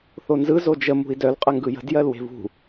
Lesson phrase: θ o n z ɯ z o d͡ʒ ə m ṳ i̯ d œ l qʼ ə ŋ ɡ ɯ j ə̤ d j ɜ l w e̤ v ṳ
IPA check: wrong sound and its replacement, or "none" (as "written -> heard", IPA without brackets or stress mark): none